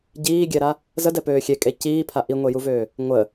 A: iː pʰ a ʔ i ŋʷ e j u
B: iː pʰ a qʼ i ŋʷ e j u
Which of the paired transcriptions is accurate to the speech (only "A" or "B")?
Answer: A